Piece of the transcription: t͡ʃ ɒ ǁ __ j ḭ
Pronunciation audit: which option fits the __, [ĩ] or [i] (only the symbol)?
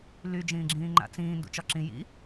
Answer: ĩ